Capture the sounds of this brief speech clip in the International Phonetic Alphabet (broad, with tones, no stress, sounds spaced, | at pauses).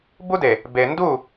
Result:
b u˦ d e˨ | b e˨ n d u˦˨